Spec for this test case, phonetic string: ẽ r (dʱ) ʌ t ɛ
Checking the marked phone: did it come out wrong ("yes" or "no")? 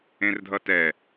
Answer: no